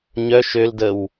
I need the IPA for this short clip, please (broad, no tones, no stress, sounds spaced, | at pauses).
ɲ œ ʃ ø l d ə w